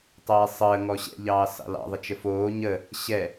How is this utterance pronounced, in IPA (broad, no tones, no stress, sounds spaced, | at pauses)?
tˤ ɛː sˤ əː ŋ ɔ ɕ ɛ̰ ʎ ɑː s ɑ̰ l ɑ̰ ðˤ ə t͡ʃ ə f oː ɲ ə | ɕ ɛ